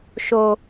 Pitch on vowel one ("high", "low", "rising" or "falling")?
low